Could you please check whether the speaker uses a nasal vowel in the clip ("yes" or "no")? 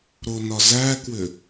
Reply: no